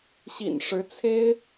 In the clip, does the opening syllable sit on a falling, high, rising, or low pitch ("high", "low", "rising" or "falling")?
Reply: low